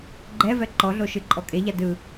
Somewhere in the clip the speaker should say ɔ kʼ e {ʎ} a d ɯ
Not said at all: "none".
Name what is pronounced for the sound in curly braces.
ʎ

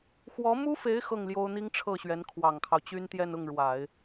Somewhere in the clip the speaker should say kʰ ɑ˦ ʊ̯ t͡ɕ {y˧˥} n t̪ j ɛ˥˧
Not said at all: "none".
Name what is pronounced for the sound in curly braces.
y˥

